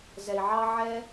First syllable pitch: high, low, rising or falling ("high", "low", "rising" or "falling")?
low